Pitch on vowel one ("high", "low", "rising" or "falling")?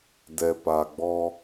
low